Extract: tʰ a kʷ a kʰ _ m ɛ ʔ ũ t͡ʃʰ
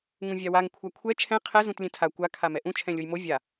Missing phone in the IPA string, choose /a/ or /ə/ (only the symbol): a